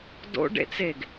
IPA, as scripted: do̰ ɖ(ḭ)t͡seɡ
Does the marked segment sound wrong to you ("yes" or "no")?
yes